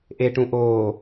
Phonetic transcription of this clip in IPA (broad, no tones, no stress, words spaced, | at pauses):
ʔeʈũ ʔoː